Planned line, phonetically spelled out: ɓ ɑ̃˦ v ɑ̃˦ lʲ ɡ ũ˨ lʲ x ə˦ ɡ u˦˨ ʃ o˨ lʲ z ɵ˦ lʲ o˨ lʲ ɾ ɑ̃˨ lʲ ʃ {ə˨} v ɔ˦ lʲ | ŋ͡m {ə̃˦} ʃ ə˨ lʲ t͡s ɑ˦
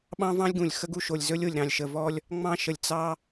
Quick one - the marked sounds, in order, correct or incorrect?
correct, incorrect: ɑ̃˦

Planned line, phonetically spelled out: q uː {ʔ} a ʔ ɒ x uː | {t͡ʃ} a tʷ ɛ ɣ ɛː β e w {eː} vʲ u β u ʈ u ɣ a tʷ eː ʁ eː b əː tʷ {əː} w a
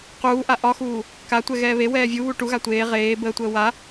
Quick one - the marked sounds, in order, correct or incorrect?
correct, incorrect: k, incorrect: ɛː, correct

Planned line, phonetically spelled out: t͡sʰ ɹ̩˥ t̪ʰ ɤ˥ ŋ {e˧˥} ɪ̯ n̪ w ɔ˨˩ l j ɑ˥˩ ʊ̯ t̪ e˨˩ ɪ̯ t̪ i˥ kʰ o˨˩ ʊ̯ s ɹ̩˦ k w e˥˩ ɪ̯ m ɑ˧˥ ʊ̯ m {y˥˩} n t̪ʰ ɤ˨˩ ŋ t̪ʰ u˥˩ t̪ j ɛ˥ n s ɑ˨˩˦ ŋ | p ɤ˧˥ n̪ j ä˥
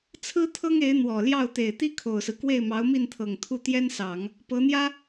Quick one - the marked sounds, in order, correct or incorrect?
correct, incorrect: i˥˩

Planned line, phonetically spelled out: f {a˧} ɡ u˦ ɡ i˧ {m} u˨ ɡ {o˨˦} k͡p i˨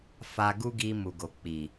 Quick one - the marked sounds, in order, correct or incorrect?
correct, correct, incorrect: o˨

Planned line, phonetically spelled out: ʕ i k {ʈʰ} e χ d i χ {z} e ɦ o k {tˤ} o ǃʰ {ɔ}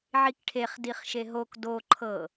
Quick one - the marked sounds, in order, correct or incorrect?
correct, incorrect: ʃ, incorrect: d, incorrect: ɤ

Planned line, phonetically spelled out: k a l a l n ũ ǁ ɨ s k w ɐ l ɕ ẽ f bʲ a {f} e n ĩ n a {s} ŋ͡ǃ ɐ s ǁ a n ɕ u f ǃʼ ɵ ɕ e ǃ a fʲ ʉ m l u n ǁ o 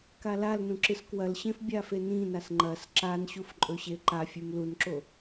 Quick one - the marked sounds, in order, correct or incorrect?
correct, correct

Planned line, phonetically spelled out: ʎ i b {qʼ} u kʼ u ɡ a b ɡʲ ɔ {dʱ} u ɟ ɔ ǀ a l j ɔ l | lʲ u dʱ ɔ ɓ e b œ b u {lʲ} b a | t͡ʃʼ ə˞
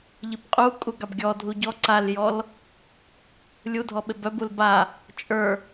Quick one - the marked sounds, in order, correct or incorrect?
correct, correct, incorrect: l

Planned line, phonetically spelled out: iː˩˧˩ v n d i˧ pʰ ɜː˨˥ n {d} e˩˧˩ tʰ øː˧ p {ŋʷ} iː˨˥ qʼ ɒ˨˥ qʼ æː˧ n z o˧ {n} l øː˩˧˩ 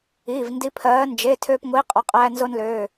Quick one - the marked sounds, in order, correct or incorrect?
incorrect: d͡ʒ, correct, correct

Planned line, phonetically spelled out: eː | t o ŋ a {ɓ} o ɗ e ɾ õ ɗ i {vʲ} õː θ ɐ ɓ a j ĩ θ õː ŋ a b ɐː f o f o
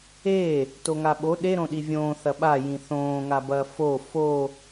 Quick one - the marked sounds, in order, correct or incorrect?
correct, correct

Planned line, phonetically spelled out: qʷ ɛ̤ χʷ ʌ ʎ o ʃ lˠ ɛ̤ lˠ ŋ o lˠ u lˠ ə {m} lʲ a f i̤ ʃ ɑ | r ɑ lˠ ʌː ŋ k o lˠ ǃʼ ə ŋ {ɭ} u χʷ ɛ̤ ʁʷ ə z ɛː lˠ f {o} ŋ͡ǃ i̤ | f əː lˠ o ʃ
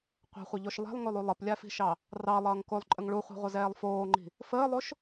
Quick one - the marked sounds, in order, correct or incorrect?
incorrect: p, correct, incorrect: oː

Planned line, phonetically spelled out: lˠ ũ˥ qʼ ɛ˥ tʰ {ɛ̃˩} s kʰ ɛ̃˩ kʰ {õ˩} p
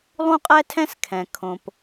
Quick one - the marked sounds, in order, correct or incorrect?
incorrect: ɛ̃˥, correct

